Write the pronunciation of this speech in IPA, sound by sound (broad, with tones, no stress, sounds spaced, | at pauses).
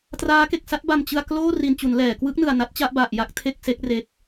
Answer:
t r aː˦˥ k e˨˩ k̚ s a˥˩ t̚ b a˨˩ m t͡ɕ ɯ˧ a̯ k l oː˥˩ r i˨˩ n t͡ɕ u˩˦ n l ɛː˩˦ k w ɯ˦˥ k̚ n ɯ˨˩ a̯ n a˦˥ t̚ t͡ɕ a˥˩ ʔ b a˨˩ ʔ j a˥˩ k̚ tʰ e˥˩ k̚ s e˦˥ k̚ r e˦˥ k̚